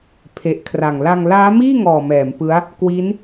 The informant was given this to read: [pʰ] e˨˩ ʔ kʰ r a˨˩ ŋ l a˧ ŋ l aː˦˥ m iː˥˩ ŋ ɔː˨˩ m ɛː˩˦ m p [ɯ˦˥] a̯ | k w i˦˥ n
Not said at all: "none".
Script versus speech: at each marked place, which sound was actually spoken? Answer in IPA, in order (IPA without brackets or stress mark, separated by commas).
pʰ, ɯ˦˥